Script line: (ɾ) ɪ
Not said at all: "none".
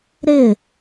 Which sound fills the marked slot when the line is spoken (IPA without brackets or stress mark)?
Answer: ɾ